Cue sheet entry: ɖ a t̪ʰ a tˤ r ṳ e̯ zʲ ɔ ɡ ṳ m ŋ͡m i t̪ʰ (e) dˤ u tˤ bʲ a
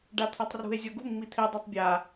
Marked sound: correct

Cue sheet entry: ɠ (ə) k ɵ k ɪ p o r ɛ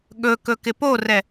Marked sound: incorrect: ɵ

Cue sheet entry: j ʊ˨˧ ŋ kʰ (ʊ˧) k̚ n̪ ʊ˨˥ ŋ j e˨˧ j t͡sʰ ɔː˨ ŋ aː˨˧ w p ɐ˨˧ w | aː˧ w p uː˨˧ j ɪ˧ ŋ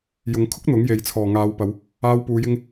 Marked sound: incorrect: ʊ˥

